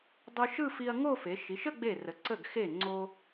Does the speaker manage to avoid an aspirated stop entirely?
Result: yes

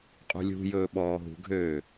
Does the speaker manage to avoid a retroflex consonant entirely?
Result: yes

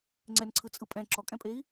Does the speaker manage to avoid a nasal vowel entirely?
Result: no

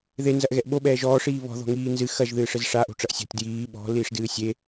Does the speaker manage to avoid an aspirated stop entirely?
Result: yes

